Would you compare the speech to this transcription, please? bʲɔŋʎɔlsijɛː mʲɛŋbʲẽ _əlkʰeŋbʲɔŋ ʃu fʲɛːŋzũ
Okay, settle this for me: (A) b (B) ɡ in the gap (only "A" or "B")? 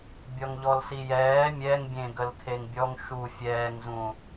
B